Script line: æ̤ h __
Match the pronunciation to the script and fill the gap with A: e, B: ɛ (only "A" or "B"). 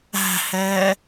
B